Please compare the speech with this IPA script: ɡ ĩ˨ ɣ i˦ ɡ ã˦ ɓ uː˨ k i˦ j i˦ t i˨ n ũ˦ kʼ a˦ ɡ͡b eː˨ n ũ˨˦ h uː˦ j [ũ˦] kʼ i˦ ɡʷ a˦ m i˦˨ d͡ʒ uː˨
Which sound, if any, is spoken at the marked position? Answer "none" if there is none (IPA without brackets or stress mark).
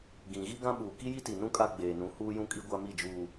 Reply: ũ˦